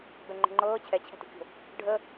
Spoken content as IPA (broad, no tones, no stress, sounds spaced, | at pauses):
b ɛ ŋ͡ǃ ə̤ ŋ͡ǃ ɤː t͡ɕʰ ɛ t͡ɕʰ ɛ̤ t o̤ kʲ o̤ | ɖʱ ə